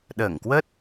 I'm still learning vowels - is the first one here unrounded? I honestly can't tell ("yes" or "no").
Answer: yes